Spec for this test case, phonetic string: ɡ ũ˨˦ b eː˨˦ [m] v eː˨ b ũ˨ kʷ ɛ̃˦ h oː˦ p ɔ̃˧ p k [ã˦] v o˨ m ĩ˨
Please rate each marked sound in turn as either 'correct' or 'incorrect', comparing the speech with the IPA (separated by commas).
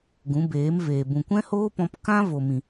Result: correct, correct